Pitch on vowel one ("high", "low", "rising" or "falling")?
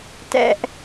high